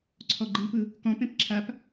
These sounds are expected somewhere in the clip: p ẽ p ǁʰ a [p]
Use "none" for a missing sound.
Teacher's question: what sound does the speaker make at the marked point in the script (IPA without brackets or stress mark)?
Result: p